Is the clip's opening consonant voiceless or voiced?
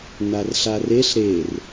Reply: voiced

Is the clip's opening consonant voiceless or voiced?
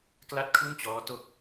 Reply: voiceless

